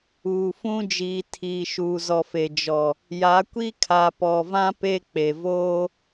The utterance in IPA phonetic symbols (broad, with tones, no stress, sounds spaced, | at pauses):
uː˨ f ũ˦ d͡ʒ iː˨ tʰ iː˨ ʃ uː˨ z ɔ˨ f e˨ d͡ʒ ɔ˨ | j a˨˦ kʷ i˦ kʰ a˨ p ɔ˨ v ã˦ p e˦ k͡p e˨ v oː˦